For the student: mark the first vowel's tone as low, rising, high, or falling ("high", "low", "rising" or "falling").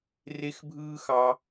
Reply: high